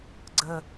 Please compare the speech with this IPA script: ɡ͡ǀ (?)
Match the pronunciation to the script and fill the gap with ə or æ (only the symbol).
ə